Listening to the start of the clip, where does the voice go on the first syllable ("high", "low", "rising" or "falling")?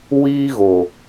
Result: high